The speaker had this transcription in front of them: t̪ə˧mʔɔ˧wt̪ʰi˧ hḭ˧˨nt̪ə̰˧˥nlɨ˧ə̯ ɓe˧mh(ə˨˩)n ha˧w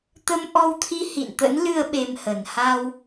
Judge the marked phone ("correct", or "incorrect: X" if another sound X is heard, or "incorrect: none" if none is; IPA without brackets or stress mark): correct